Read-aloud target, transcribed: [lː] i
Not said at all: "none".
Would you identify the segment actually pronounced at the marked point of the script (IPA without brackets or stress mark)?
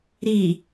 ɾ